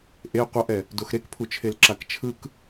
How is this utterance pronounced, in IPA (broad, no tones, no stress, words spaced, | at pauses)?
ʔe qʷʌʔɛ | doxɾekpʰut͡ʃʰel ǁakt͡ʃʰɯk